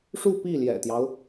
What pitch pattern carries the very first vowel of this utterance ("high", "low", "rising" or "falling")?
falling